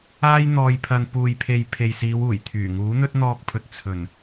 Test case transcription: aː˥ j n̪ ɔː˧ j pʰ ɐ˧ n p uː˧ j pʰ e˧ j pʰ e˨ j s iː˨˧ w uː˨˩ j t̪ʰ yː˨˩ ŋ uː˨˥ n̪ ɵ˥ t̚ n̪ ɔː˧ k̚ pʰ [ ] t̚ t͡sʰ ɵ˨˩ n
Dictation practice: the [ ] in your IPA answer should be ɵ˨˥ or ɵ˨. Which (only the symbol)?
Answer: ɵ˨